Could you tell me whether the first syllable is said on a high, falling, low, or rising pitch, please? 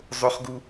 high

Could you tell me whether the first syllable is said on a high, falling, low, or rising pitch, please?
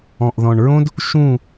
low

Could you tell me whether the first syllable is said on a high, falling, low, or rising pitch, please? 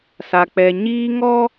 low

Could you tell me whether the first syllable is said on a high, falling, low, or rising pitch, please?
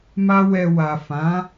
high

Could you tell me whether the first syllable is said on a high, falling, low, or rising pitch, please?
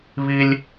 high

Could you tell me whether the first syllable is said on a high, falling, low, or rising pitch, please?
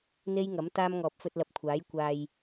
high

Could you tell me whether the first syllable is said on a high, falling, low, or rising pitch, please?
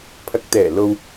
low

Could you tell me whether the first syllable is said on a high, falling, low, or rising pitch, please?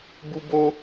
high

